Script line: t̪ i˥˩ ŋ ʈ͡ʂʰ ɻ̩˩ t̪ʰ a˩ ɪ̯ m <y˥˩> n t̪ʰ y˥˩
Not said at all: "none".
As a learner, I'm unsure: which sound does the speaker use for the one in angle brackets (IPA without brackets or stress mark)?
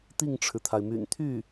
y̰˨˩